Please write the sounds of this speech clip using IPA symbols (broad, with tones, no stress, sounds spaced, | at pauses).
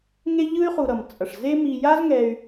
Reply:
ŋ e˥ ʎ ɯ˥ y̯ χ u˨ ɾ ʌ˩ m t͡sʼ ʌ˩ ʂ z e˦ m i˨ j a˦ z ŋ ɛ˨ y̯